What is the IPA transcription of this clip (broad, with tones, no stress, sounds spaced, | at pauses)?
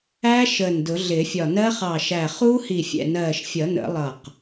æ˦˥ ʃ əː˧˩ n d ʊ˨˩˦ ɮ ɪː˨˩˦ fʲ ɒ˧˩ n ɜ˦˥ χ ɑ˧˩ ʃ æ˧˩ χ uː˦˥ h i˧˩ fʲ ɛ̰˧˩ n ɜː˧˩ ʃ fʲ ʌ˨˩˦ n ə̰˨˩˦ lˠ ʌ˧˩ q